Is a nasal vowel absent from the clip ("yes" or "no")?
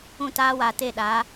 no